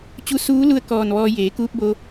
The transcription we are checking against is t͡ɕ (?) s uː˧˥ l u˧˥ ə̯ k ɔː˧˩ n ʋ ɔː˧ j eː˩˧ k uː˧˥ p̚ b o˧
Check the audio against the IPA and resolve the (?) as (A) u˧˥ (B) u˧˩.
A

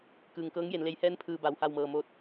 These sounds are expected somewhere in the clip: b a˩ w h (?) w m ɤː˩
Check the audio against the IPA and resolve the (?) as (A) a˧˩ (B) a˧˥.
A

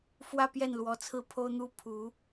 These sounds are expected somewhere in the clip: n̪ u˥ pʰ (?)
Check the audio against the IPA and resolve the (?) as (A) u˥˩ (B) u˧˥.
B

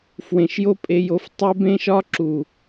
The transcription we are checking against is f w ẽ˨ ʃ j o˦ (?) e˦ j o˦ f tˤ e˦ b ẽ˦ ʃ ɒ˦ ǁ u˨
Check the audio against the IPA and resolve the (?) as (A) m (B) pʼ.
B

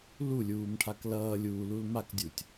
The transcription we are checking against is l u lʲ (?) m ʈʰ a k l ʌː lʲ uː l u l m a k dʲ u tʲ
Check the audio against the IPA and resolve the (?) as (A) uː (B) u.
A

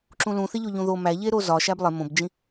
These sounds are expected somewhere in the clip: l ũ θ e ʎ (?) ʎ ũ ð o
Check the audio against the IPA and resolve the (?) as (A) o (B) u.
A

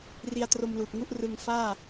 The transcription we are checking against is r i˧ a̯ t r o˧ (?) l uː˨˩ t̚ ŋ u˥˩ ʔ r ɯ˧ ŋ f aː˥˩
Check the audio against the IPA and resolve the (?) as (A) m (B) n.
A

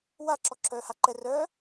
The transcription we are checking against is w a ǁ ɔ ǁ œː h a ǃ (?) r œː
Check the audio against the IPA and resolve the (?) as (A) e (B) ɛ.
B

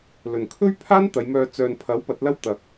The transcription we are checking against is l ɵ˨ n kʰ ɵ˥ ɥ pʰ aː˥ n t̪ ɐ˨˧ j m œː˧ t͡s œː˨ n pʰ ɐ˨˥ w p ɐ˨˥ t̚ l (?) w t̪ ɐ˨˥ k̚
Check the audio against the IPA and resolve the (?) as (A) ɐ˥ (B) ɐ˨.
A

